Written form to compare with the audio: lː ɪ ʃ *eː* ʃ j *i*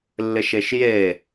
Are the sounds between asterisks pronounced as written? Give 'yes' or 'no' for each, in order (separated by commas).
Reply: no, no